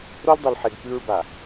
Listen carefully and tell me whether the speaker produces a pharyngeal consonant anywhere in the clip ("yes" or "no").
yes